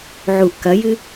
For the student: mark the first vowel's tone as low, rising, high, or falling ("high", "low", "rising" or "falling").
low